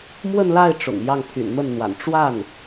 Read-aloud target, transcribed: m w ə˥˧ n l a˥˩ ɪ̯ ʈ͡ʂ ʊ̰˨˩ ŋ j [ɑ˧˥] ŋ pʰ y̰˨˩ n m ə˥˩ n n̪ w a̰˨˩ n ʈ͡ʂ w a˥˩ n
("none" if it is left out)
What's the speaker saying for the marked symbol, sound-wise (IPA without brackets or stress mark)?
ɑ˥˩